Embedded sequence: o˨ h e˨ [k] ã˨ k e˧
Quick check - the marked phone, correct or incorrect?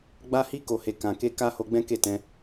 correct